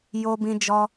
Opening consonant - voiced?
yes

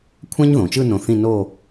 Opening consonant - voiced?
no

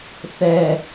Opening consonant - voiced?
no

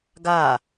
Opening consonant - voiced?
yes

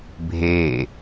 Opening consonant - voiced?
yes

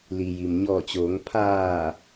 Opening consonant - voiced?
yes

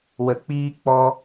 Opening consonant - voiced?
yes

